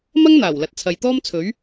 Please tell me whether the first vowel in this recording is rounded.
no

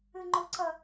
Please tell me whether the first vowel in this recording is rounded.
no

